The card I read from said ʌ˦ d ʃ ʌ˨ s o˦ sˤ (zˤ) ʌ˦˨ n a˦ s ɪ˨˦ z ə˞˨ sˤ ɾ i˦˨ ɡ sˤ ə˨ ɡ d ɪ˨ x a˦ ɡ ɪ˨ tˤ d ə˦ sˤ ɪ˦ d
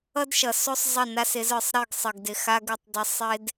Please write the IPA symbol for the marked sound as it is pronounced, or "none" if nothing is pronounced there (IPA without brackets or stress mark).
zˤ